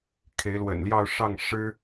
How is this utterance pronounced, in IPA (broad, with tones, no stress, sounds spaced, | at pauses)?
kʰ e˨˦ ɪ̯ l w ə̰˨˩ n l j ɑ˥˨ ʊ̯ ʂ ɑ˥˨ ŋ ʂ ɻ̩˦